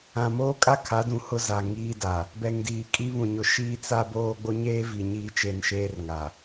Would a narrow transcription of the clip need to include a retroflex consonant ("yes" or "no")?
no